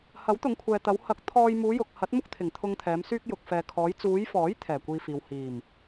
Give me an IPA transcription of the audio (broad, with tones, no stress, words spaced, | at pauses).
hɐ˨˥wt̪ʊ˨˧ŋkʷʰɛː˨t̪ɐ˨˧w hɐ˨˥k̚ t̪ʰɔː˧j muː˨˧jʊ˨k̚ hɐ˨˥t̚mʊ˥k̚ t̪ʰɪ˨˩ŋt̪ʰʊ˧ŋt̪ʰɛː˨˧m syː˧k̚jʊ˨k̚fɛː˨kʰɔː˨˧j t͡suː˨˧jfɔː˨˥j t̪ʰɛː˨˩kʷiː˧fiː˨w hiː˨˩m